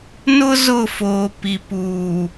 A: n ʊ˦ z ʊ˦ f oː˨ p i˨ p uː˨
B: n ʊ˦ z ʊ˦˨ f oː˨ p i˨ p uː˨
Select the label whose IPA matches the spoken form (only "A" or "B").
B